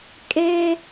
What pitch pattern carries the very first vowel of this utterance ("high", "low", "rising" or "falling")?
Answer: high